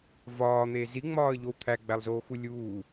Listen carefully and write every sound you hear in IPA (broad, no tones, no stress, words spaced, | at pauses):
vɒːn̪e ziŋ͡mɒːə̯ʎow t̪ʰæɡ͡bælˠzoːxu lʲuː